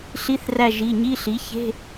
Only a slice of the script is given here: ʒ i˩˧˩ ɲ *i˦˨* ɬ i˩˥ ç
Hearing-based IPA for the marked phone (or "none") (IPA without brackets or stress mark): i˧˥˧